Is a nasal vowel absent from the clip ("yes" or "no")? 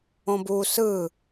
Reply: no